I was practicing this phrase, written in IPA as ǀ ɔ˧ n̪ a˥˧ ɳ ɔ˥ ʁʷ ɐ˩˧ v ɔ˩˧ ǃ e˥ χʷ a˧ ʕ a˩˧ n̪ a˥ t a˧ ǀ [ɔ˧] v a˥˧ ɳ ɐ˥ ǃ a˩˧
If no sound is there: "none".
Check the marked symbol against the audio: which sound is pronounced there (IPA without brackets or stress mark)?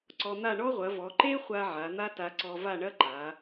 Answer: ɔ˧